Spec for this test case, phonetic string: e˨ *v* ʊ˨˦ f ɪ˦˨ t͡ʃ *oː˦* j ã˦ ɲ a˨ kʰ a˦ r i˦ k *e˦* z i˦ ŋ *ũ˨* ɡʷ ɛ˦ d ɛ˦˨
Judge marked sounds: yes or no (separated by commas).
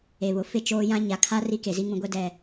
no, yes, no, no